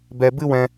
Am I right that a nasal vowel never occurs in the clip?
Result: no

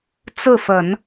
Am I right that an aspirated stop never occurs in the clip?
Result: yes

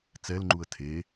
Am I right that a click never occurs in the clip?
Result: no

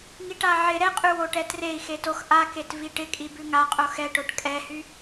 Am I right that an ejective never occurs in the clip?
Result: no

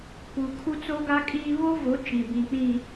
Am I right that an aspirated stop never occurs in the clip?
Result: no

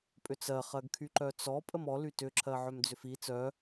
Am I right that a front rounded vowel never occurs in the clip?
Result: no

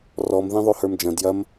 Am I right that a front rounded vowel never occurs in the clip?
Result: yes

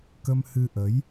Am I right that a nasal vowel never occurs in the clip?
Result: yes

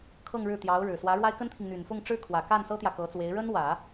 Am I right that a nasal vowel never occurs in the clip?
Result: yes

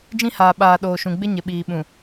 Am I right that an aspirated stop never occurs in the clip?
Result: yes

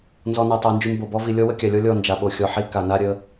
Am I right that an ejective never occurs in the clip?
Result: yes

